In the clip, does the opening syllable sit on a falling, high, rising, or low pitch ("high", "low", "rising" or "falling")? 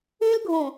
high